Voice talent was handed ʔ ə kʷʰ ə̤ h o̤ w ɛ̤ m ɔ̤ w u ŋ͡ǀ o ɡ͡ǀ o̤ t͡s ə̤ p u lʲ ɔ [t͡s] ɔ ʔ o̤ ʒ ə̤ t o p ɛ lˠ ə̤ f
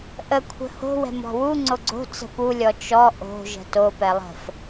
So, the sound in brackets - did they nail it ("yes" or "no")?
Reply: no